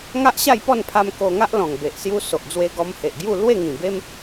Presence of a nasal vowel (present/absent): present